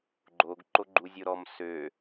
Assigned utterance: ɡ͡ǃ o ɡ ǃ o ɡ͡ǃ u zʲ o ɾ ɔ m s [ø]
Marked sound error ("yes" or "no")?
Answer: no